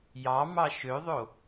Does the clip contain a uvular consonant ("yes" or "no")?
no